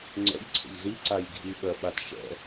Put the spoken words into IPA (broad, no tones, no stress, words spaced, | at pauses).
ŋ͡ǀɛ̰ʎǀʰə̰ʎ ziǀajɡʱiɓɜ ɓatʃɛ̰